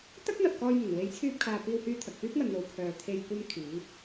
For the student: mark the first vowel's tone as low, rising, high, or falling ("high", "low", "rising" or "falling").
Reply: high